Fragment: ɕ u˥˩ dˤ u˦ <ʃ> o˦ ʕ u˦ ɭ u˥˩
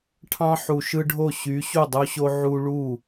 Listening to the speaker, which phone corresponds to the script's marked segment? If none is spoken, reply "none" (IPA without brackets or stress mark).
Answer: ɕ